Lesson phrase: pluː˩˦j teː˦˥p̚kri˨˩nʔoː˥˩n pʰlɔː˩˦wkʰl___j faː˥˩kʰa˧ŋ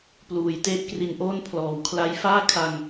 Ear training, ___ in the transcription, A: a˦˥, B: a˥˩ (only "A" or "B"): A